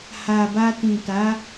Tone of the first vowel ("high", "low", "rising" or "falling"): low